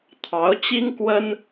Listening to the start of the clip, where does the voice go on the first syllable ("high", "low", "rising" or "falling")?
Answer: rising